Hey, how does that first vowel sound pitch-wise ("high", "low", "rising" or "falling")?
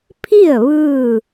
falling